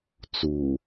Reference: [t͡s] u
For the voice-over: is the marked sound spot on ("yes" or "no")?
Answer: yes